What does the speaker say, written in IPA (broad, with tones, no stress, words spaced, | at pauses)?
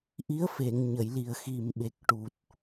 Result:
ʔi˧˥ə̯fe˨˩˨ŋ ɲə˨˩˨jli˨˩ə̯xi˨˩m ɓe˨˩k̚ʈu˨˩t̚